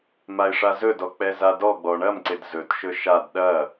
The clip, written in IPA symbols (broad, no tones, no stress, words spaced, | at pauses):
maɪ̯ʂazɵdɔ k͡pɛzadɔɡ͡bɔ ɳɐmǀɪd zɵtʃɵ ʃad ɗɐ